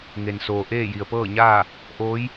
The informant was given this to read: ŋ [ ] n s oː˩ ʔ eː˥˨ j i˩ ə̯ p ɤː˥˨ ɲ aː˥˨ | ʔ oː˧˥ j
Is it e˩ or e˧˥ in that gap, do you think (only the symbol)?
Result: e˩